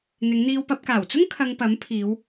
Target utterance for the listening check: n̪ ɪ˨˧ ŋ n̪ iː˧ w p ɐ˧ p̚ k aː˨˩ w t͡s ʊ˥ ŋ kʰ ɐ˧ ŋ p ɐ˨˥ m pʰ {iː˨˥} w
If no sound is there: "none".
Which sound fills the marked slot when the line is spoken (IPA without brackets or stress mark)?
iː˨˧